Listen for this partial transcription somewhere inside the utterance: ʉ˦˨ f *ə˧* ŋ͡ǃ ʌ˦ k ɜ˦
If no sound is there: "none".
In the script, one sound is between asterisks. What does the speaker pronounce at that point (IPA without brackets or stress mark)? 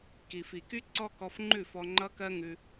ɔ˧